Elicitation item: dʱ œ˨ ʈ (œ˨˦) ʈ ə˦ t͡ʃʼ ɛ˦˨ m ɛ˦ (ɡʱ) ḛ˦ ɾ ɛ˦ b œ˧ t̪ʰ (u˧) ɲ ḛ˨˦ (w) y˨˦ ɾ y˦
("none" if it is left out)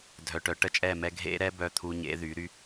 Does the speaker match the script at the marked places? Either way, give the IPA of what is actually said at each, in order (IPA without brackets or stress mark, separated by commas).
œ˨˦, ɡʱ, u˧, ð